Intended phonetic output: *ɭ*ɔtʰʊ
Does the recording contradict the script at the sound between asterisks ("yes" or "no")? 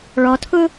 no